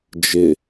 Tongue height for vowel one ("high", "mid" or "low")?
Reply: high